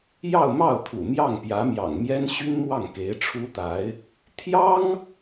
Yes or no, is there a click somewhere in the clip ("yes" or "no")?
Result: no